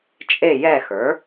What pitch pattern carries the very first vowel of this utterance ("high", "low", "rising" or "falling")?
falling